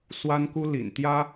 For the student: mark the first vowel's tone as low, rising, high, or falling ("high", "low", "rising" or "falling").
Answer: high